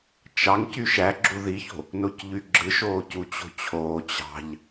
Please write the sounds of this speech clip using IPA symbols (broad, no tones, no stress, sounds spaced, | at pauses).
t͡ʃ ɑ ŋ c y ʃ æ ɡ͡ǁ u ð i ç o̤ | n o c ʎ y ɡ͡ǁ ɯ ʃ oː c u t͡ɕ o̤ t͡ɕʰ oː t͡ɕ ɑ̤ ʎ